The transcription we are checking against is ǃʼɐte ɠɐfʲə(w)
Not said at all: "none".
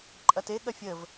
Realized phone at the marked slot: v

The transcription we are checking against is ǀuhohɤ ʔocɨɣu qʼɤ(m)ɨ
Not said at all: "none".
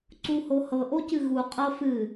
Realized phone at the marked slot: f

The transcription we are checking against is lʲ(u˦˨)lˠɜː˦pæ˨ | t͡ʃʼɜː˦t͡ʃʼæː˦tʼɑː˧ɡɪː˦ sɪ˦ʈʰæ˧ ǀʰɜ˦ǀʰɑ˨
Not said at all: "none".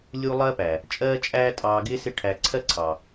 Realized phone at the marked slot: u˦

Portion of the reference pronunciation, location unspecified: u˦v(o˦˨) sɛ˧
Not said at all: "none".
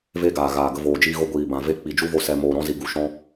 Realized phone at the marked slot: o˧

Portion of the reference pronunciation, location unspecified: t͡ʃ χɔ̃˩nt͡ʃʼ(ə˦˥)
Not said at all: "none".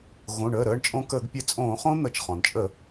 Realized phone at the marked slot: ə˧˩˧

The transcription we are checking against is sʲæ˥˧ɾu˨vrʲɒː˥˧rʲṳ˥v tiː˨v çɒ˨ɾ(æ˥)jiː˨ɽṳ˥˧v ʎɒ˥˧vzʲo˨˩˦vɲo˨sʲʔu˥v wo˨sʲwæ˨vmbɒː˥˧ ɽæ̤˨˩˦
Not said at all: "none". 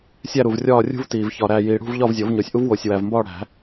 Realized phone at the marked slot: æ˨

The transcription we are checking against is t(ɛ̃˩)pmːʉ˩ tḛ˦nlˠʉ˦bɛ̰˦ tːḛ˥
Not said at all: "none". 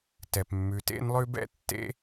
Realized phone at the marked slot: ɛ˩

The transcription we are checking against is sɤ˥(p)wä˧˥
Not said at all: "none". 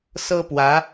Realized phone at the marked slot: p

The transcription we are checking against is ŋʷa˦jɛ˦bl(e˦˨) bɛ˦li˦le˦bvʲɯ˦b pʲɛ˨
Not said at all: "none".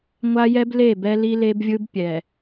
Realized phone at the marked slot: e˦˨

